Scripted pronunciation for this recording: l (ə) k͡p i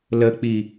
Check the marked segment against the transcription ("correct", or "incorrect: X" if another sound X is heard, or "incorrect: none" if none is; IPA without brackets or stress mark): correct